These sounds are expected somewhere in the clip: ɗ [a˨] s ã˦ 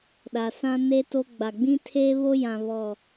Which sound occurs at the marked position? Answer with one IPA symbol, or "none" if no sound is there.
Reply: a˨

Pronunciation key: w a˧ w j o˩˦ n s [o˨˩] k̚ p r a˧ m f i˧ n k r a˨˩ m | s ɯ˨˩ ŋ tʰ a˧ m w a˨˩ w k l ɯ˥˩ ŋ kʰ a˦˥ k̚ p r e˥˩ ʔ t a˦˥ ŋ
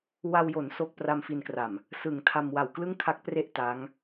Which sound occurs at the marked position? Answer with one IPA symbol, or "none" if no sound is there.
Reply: o˥˩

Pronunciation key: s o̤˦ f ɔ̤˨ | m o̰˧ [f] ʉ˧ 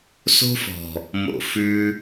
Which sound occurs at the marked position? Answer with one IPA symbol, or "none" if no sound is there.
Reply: f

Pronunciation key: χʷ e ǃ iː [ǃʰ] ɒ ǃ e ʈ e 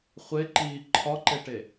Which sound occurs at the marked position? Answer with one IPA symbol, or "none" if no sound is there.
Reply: ǃʰ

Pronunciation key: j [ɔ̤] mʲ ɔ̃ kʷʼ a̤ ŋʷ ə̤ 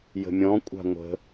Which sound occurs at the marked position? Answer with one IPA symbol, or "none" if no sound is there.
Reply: ə̤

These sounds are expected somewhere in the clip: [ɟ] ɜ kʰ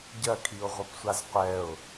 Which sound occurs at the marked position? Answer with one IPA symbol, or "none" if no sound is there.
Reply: ɟ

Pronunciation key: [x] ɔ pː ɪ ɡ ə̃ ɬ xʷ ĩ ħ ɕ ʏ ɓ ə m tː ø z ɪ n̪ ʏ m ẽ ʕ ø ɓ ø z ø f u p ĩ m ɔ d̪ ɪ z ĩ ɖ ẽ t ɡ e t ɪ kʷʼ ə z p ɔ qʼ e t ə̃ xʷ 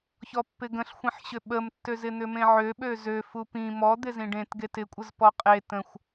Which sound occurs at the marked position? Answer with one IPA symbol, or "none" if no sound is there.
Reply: ç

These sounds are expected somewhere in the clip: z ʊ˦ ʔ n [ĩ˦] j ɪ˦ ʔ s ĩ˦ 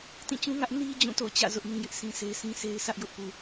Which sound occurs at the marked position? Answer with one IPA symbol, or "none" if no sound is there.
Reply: ĩ˦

